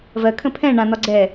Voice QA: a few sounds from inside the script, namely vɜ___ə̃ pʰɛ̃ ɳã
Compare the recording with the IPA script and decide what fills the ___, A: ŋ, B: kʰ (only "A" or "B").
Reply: B